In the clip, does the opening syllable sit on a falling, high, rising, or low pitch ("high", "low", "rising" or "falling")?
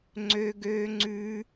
high